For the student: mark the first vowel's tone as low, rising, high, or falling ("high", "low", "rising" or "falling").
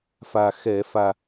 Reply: low